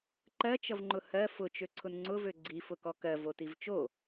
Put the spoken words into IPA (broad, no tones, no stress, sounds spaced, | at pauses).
ǃ ɜ t͡ʃ ʌ v ŋ͡ǃ ʊ h ɜ f ʊ t͡ʃ ø ǀʰ ʊ n ŋ͡ǀ ʊ v ø ɡ͡ǀ i f ʊ k ɔ k ɜ v o t i v t͡ʃ o